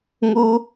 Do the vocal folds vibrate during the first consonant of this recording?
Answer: yes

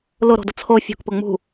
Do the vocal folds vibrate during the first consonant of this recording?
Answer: yes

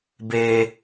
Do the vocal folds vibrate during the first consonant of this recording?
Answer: yes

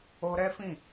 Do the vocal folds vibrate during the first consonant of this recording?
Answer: yes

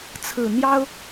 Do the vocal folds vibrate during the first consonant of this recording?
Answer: no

